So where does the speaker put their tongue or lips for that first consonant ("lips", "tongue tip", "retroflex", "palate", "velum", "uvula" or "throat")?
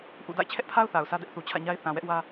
throat